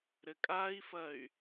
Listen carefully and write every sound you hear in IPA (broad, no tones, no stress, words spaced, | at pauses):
ɾɘkʼai̯fɐy̯